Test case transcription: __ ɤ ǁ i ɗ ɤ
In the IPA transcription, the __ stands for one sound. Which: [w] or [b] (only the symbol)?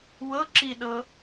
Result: w